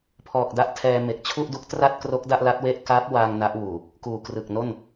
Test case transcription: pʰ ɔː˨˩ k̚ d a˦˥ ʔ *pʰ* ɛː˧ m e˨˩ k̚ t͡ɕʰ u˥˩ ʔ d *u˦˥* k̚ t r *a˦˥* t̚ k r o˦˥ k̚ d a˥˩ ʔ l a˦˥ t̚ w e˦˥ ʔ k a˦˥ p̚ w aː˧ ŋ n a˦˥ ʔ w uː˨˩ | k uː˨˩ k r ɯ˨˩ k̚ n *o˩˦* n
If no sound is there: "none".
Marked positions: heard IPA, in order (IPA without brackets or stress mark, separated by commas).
tʰ, u˦˥, a˥˩, o˥˩